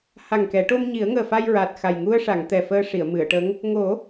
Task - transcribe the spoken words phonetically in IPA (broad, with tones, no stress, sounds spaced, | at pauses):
h a˨˩ ŋ k ɛ˨˩˦ ʈ o˧ m ɲ i˨˩˦ ə̯ ŋ əː˨˩ f a˧ j ɹ a˨˩ t̚ x a˨˩ j ŋ u˧ ə̯ ʂ a˨˩˨ ŋ t̪ ɛ˨˩ f əː˧ ʂ i˨˩˨ ə̯ m ɨ˨˩˨ ə̯ ʈ ə˧˥ ŋ | ŋ o˨˩˦